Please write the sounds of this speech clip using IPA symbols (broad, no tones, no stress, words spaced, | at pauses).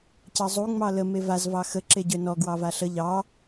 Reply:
cɑzˤu ŋ͡mɑlə mevaz vɑxə ǁeɟønɔ ɡwɑvaɬə ʎɑ